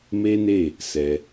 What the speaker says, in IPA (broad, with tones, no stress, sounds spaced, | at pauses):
m e˦ n e˦˨ | s ɛ˧